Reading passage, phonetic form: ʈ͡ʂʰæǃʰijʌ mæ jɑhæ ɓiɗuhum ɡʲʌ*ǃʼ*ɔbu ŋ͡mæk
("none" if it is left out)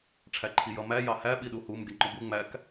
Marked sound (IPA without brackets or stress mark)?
ŋ͡ǃ